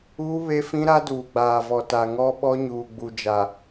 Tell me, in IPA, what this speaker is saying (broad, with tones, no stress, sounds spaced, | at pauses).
uː˦ β e˦ f ĩ˦ ɾ a˦ d uː˨ ɡ͡b aː˨ v ɔ˨ t a˨ ŋ ɔ˦ ɓ ɔ˦ ɲ uː˨ ɡ͡b u˨ d͡ʒ a˨